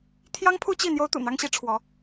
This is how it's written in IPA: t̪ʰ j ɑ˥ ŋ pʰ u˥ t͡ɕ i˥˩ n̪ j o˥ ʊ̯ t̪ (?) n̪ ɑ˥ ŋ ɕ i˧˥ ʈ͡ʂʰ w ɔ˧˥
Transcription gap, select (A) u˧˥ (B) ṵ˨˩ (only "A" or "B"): B